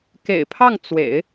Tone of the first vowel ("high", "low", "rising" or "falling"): low